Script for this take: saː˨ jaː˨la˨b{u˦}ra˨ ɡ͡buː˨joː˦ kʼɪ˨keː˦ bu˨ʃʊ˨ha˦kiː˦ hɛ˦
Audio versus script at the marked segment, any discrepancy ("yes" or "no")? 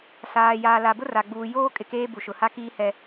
yes